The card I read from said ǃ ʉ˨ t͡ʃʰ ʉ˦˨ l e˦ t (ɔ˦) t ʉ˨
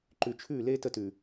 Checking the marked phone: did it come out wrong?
yes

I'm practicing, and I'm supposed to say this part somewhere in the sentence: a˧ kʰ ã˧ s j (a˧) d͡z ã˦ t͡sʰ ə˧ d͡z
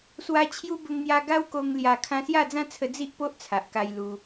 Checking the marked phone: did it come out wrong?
yes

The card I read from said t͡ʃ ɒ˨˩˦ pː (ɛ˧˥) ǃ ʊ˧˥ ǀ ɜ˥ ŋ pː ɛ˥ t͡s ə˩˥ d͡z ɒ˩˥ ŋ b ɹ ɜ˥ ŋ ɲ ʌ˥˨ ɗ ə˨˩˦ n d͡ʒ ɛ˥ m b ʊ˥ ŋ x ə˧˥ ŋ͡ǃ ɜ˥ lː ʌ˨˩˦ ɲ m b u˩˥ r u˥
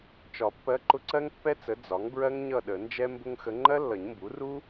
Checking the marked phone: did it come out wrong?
yes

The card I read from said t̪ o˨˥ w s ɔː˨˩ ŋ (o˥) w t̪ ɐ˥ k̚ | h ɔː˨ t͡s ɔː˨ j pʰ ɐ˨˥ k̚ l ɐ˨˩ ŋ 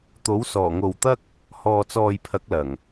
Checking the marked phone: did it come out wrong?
yes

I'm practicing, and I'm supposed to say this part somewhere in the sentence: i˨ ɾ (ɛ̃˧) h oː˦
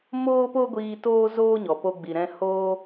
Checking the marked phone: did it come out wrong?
no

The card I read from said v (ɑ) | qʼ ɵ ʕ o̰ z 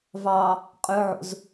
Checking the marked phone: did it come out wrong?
no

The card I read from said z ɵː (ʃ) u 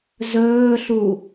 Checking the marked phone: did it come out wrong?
yes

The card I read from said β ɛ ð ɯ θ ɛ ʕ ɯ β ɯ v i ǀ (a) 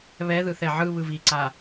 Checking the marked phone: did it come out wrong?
no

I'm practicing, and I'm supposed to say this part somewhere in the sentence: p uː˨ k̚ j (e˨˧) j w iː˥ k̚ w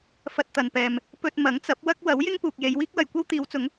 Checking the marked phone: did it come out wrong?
no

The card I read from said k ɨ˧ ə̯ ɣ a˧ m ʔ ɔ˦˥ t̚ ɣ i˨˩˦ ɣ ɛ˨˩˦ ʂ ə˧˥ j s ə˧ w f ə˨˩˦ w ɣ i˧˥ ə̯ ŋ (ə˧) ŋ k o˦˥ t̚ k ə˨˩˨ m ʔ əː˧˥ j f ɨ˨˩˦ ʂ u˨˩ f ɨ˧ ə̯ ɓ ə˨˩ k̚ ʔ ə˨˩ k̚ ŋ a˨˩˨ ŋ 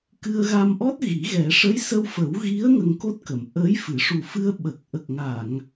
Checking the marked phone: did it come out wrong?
no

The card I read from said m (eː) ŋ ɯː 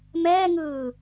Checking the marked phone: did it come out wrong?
yes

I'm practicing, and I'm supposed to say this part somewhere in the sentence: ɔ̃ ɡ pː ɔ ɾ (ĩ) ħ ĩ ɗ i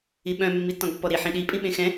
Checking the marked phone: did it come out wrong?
yes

